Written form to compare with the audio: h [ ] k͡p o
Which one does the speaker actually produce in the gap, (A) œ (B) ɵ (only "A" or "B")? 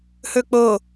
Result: B